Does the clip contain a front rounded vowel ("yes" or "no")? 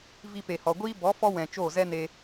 no